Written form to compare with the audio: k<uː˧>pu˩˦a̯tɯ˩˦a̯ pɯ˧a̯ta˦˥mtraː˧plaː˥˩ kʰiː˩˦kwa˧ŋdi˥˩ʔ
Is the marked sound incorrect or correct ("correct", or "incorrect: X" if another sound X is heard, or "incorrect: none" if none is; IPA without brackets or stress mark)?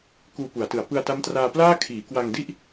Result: correct